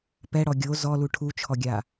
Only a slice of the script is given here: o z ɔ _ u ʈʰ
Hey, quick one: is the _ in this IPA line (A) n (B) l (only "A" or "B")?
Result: B